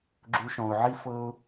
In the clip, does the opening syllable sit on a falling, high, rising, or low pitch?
low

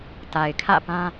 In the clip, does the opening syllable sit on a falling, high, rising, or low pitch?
low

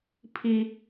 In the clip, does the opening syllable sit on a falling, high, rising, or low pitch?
high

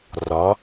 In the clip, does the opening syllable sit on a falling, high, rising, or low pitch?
rising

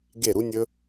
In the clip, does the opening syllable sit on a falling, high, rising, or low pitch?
falling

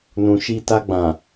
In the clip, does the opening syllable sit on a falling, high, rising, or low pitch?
low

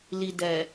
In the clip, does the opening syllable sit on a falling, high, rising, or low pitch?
low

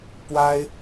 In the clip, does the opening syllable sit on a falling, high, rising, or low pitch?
high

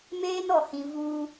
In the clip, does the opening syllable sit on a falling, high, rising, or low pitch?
high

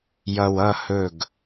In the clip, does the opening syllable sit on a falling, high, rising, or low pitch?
low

